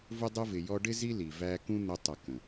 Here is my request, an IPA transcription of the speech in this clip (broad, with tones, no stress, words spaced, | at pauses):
vʊ˧dˤʊ˧vɪ˨ jɔ˧ɖɪ˦ zi˦ li˨ væ˧kũ˦ n̪ʊ˧tˤʌ˨ kə̃˨